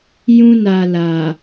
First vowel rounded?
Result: yes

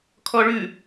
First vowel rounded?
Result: yes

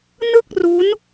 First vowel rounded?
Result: no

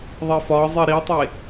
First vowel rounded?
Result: no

